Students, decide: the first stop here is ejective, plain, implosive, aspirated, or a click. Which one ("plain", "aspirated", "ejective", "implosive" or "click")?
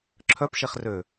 click